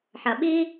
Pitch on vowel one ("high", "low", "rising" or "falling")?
low